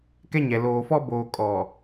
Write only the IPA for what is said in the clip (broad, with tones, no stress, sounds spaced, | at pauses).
k ɛ˦ ɲ ɛ˨ l oː˨ f ɔ˦ b oː˨ kʼ ɔ˨